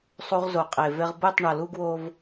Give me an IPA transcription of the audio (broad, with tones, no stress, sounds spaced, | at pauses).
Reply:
sˤ u˦ ʁ z o˨ qʼ e˨ v e˦ ʁ b ɯ˦˨ tˤ ɳ ʌ˨ l u˦ ɡ w o˦ v